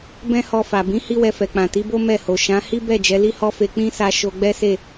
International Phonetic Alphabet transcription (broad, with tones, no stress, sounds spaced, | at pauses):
b ɛ̃˦ h ɔ˧ f a˨ b ĩ˨˦ h i˦ w ɛ˧ f ɛ˨ k͡p ã˨ t i˨˦ b o˦ m ɛ˦˨ h o˨ ʃ ã˨˦ h i˦ b ɛ˦˨ d͡ʒ ɛ˨˦ l i˦ h ɔ˦ f e˧ k͡p ĩ˦ s a˧ ʃ o˧ ɡ͡b ɛ˦ s e˦˨